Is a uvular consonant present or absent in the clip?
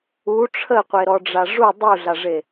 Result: present